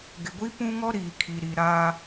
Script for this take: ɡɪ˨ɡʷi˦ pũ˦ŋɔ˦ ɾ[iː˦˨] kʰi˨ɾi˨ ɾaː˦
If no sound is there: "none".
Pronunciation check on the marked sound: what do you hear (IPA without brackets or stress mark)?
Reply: iː˨